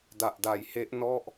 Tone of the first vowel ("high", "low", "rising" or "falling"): low